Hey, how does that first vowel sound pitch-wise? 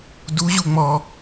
rising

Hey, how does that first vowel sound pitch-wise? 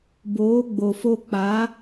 rising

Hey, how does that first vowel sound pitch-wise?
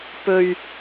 low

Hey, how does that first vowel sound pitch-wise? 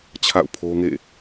falling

